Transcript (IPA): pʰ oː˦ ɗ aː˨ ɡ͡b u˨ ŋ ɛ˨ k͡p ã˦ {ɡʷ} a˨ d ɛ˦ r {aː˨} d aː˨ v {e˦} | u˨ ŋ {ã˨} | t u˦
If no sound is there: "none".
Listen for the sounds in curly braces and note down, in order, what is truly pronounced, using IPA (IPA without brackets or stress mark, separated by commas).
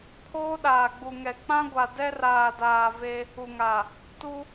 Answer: ɡʷ, aː˨, e˦, a˨